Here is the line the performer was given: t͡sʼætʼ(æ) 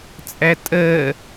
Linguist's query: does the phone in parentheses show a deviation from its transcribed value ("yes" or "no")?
yes